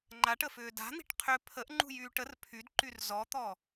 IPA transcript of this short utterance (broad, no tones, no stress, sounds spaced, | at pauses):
ŋ͡ǃ a ʈ ə f ʏː d a̤ n̪ i̤ ʈ qʰ ʏ pʰ ə ʔ ŋ͡ǃ ṳ j yː ʈ ə r pʰ y d ǃ y r z ɔ t̪ ɔ